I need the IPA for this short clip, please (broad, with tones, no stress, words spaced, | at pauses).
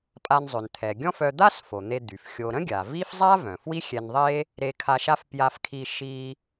pʼa˧nzˤø˩n t̪ʰɛ˩ɡʲɔ̃˥fœ˧ d̪a˥sfo˩ n̪e˧d̪y˩f xʲo˧ ɾə̃˥ɡʲa˩ vi˥f zˤa˥ vœ̃˩fwi˥xʲɛ˧nðˤe˥ | ɾe˧kʰa˧ʃa˥f pja˧fkʰi˧ ʃi˧